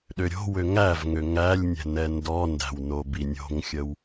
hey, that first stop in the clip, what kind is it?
implosive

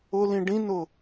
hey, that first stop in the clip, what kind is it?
plain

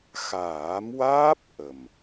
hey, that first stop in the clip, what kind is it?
plain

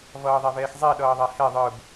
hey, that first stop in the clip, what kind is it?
implosive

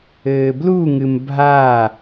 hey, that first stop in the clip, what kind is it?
plain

